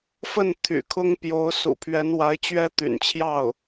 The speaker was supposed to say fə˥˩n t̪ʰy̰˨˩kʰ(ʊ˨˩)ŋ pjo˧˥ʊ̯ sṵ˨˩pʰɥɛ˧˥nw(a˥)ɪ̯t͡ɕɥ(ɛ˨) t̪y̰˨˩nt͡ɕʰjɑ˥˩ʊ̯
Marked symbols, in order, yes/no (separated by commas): no, no, no